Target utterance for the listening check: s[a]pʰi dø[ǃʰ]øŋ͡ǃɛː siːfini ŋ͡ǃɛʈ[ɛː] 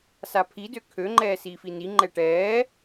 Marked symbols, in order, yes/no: yes, no, yes

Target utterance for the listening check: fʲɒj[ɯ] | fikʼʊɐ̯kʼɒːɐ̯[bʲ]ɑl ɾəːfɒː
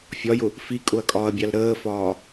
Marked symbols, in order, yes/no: no, yes

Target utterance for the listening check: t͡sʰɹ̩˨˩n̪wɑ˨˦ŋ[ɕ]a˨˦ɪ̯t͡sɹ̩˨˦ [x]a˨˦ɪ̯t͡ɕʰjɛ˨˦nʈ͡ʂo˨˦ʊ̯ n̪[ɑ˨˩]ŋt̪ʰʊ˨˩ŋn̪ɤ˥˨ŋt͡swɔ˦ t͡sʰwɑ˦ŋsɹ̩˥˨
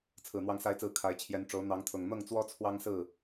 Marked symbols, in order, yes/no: no, no, no

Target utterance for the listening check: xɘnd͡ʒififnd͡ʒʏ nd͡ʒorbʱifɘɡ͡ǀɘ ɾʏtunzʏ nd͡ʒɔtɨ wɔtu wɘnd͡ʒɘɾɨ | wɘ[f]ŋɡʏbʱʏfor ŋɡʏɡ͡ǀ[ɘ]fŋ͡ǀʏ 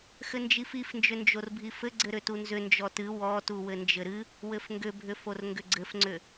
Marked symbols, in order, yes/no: yes, yes

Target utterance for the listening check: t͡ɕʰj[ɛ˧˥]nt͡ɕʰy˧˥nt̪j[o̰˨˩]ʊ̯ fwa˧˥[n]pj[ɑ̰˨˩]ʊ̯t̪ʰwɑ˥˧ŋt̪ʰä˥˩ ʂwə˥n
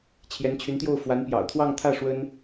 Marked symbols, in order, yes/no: yes, no, yes, yes

